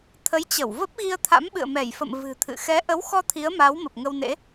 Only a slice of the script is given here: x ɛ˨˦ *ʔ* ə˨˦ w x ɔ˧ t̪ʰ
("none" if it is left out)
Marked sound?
ʔ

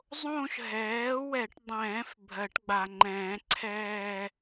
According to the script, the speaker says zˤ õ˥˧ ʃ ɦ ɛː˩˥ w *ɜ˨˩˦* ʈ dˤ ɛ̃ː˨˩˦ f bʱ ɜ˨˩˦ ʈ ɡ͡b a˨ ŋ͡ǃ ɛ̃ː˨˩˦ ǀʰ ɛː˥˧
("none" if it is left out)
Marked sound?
ɛ˨˩˦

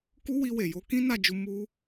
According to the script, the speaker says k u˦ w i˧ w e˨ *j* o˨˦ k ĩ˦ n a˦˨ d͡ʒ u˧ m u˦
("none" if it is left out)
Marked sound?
j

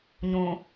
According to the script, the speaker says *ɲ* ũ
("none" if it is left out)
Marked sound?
ɲ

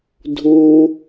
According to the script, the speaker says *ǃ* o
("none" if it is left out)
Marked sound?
dʱ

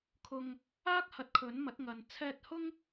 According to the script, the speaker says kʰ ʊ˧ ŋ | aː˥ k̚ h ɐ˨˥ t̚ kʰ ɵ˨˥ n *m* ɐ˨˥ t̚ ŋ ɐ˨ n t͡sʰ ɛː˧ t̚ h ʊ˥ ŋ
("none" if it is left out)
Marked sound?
m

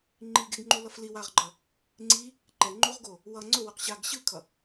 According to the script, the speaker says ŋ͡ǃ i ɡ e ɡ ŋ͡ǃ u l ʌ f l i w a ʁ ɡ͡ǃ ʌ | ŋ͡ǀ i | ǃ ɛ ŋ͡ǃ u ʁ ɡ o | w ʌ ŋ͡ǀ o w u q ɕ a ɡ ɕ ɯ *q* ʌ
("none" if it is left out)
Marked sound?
kʰ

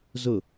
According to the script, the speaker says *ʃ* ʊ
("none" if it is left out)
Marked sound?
z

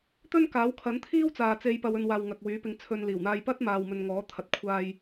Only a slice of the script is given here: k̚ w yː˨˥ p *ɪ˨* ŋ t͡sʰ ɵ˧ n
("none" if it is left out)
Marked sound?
ɪ˧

